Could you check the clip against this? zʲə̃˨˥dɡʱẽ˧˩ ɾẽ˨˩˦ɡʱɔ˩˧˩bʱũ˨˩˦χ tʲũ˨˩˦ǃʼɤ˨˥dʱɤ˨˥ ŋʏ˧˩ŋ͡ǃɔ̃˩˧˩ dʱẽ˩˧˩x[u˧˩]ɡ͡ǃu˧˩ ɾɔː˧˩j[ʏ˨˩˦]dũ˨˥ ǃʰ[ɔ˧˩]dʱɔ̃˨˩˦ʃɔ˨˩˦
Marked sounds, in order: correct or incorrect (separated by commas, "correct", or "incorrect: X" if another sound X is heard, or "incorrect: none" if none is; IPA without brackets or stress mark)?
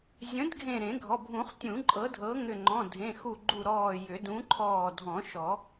correct, correct, incorrect: ɔː˧˩